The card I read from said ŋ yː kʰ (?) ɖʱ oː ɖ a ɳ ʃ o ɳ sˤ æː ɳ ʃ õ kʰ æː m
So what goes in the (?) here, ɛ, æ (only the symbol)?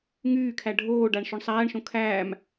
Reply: æ